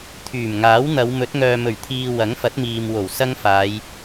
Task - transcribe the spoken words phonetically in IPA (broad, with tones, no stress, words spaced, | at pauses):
t̪ʰyː˨˩mŋaː˨˥w n̪ɐ˨˧wmɵ˨˥t̚ ŋœː˨mɵ˨˩ɥt̪ʰiː˨ wɐ˨˥ŋfɐ˨˥t̚miː˨mwo˨˩w sɐ˥ŋfaː˨˧j